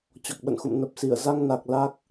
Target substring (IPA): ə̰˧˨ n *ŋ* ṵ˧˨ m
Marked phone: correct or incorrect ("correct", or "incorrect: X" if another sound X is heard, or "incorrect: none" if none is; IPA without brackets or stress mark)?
incorrect: x